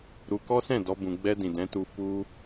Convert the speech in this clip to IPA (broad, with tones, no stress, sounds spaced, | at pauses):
ɾ u˧ k ɔ˦ s ɛ̃˦˨ d ɔ˧ b ũ˧ ɡ͡b ɛ˧ d ĩ˨ d ɛ̃˨˦ t u˧ f u˧